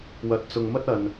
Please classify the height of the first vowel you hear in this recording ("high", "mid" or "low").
low